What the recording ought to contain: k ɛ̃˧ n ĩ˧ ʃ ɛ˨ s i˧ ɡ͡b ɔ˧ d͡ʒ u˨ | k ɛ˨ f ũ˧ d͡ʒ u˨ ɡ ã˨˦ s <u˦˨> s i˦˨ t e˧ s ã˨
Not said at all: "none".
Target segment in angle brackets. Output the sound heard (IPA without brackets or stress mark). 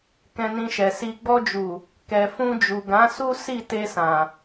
u˦